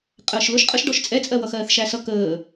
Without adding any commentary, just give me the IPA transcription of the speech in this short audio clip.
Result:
qʼəːʃlʊʃ qʼəʃɖɔʃ t͡sʼɛt͡sʼɜwʌ xɜːθʃæsʌ kəː

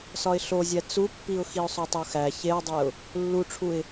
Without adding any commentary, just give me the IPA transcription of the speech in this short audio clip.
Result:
sɒɪ̯ɬozʲæ t͡supːiʊ̯ xiʊ̯sˤotˤoxæ çeʊ̯dˤeʊ̯ | lːuʈ͡ʂʰuɪ̯

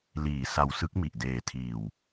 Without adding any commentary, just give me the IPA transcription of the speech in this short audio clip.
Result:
liː˨˩sa˧wsɯ˦˥k̚ mi˨˩ʔdeː˨˩tʰiː˨˩w

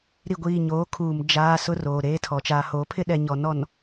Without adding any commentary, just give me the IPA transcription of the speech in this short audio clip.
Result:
ɾi˨ɡʷiː˨ ɲoː˨˦kʰuː˨m d͡ʒaː˦sʊ˦ roː˨ɾeː˦tʰɔ˨ t͡ʃaː˨hoː˨˦pʰɪ˦ ɗɛ˨ ɲɔ˨nɔ˨n

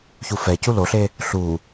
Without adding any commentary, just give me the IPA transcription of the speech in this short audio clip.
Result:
çufɛcu loɬe | ɬu

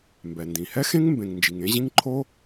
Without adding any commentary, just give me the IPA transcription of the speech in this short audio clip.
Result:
mbɛ˩ndĩ˩hɛ˥xẽ˥ŋ mbẽ˩ŋ nd͡ʒi˩ŋẽ˥ʑĩ˥ŋ ǃʰo˥

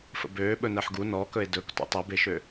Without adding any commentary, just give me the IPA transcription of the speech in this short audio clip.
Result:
fə̰bøː ɓɵnɜħɡu nɔkɵe̯ dɵk tṵtˤebeʃø

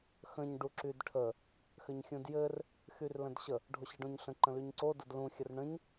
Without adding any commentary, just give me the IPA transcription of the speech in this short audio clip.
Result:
xə̃ɲ ɖuǁydʈʰə | xɘɲxʲũdjɘr | xyrlə̃dɕə | ɖʱoɕɘɖõɲɬə̃ ǃə̃lyɲǀo dədlũ xʲərɳə̃ɲ

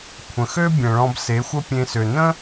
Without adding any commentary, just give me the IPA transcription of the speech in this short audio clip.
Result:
kʷʰə̃˨xø˦ bʲə̃˨ɭɔ̃˧b se˨˦xʷə˦pʲẽ˧sø˨ nə̃˦

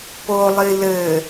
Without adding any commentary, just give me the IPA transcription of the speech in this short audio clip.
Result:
polˠi lɘ

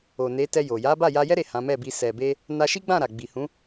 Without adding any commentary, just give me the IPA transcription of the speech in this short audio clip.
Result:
o˨ne˨˦tɛ˧ jo˨ ja˨˦ba˦˨ja˧jɛ˦ ɾe˦˨hã˨˦mɛ˦˨bi˧ sɛ˨be˧ | na˧ʃi˦ɡ͡bã˦˨ ɾa˨ɡ͡bi˨hũ˨˦

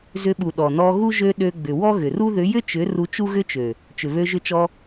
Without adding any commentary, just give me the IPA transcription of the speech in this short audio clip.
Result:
zʏ˧ɓu˨ ɗɔ˨nɔ˧ɣu˦ ʒø˧ ɗø˧ɡ͡bʏ˨ wɔ˦ɣʏ˨ru˦ ðʏ˨˦jʏ˦t͡ʃʏ˨˦ ru˧t͡ʃu˦ɣʏ˦t͡ʃø˨ | t͡ʃʏ˨βø˧ʒʏ˧t͡ʃɔ˧

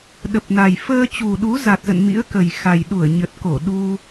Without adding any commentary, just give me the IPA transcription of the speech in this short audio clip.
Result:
ɗə˨˩p̚na˨˩j fəː˧t͡ɕu˨˩ɗu˨˦ za˨˩t̚zə̰˧˨n mḭ˧˥ə̯kə˨˩jxa˨˩j ɗu˧˩ə̯ɲə˨˩t̚ ko˧˩ɗu˧

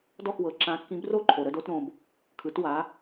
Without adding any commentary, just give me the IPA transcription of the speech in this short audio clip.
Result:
dɔ˥˨xwɤ˩˧ ǁã˨˥kːĩ˨˥bro˥˨ǃʰo˩ ɾə˥˨do˩˧tɾõ˩b | kʰɯ˩˧twa˩˧

